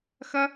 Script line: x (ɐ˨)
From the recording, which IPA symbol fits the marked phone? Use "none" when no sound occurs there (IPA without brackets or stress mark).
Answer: ɐ˦